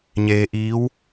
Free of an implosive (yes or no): yes